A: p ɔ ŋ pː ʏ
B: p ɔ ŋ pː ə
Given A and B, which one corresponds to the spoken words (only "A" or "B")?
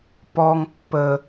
B